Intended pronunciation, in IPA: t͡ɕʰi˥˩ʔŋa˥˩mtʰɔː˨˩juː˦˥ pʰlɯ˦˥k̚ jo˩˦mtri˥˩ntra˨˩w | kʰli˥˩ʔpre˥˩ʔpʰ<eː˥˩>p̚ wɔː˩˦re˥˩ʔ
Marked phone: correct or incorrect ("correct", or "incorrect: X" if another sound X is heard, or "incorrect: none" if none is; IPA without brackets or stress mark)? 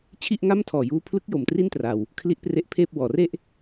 correct